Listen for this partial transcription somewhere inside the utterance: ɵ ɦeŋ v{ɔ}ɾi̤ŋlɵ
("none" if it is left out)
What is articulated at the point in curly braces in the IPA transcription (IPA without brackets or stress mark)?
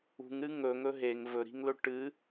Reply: ɵ